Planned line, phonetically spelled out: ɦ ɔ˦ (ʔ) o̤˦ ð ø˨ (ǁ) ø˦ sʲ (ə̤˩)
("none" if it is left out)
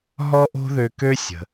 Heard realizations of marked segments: ʔ, k, ə̤˩

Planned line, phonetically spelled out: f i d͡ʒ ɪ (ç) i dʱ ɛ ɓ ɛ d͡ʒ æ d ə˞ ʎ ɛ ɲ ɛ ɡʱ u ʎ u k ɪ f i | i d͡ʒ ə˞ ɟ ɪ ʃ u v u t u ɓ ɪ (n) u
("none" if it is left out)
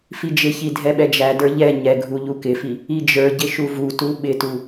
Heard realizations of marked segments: ç, t

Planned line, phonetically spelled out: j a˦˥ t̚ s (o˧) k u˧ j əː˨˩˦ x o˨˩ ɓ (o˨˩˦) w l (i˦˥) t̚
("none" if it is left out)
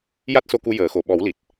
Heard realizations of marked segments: o˧, ɔ˨˩˦, i˨˩

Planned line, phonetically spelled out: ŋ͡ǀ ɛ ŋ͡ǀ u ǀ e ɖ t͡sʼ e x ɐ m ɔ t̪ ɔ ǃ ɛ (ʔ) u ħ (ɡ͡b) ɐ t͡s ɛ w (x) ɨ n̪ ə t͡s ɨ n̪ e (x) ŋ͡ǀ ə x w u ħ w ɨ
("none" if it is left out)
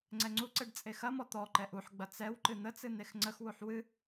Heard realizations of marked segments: ʔ, ɡ͡b, ǃ, x

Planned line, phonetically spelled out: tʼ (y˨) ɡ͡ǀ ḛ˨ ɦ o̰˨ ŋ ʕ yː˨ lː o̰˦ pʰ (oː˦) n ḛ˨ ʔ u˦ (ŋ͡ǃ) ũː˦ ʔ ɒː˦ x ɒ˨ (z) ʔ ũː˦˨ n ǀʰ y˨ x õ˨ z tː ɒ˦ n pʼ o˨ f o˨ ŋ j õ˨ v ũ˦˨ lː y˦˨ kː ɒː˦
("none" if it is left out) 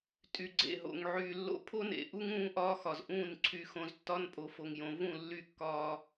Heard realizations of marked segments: y˨, o˦, ŋ, z

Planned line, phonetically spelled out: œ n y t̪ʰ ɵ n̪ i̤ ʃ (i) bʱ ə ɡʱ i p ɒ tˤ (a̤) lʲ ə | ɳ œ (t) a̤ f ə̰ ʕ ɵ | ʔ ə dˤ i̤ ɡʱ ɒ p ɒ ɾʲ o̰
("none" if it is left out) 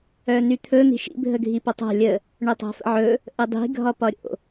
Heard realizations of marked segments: ḭ, a̤, tˤ

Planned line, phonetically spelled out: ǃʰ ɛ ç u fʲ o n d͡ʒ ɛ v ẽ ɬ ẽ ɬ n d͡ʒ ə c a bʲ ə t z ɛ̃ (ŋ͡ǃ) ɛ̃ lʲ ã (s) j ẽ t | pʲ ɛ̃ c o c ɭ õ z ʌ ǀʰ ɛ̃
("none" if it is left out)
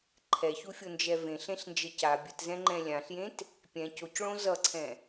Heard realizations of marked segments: ŋ͡ǃ, ɬ

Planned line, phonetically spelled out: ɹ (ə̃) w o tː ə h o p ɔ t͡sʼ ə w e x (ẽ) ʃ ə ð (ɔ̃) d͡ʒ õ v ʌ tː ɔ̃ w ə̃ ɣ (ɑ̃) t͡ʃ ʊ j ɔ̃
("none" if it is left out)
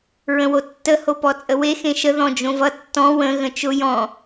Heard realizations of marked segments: ə̃, ẽ, ɔ̃, ə̃

